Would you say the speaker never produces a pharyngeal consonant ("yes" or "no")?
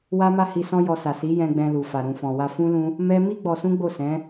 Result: yes